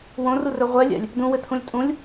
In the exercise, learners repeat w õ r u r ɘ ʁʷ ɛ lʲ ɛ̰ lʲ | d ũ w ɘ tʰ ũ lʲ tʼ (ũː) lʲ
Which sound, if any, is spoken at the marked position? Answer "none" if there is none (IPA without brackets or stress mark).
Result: ũ